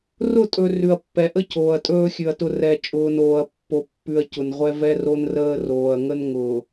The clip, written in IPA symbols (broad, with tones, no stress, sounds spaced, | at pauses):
r ʊ˦˨ tʼ ɵ˨ r ʉ˨ ɐ̯ pː ɛ˨ ʔ ə˦ cʰ oː˨ ɐ̯ tʼ ɵː˦ xʲ ʉ˨ ɐ̯ t ʊ˦ r ɛ˨ t͡ʃʼ ʊː˨ n oː˨ ɐ̯ pː o˨ pː ʉ˨ ɐ̯ c ʊ˨ n ʁʷ ɛ˦ v ɛ˦ r o˦ n r əː˦ r oː˨ ɐ̯ ŋ ə˦ n ŋ ʊː˨